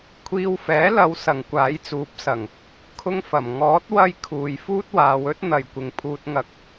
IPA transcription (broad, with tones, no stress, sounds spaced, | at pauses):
kʷʰ iː˧ w f ɛː˨˥ l ɐ˨˧ w s ɐ˨ ŋ kʷ aː˨˥ j t͡s uː˨˥ p̚ s ɐ˨˩ ŋ | kʰ ʊ˥ ŋ f ɐ˨˩ m ŋ ɔː˨˥ t̚ w ɐ˥ j kʰ uː˨ j f uː˥ t̚ w aː˨˧ w ɵ˥ t̚ n̪ ɐ˨˩ j kʷ ɪ˨˩ ŋ pʰ uː˧ t̚ ŋ ɐ˧ k̚